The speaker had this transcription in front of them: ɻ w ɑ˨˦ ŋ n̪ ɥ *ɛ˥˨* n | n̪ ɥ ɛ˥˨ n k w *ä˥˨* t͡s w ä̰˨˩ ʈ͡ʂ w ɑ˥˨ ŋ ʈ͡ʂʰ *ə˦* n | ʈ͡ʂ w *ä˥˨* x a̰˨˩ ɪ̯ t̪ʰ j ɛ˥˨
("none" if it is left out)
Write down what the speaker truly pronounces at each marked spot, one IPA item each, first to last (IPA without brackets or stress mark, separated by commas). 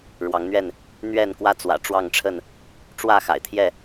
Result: ɛ˥˨, ä˥˨, ə˥˨, ä˥˨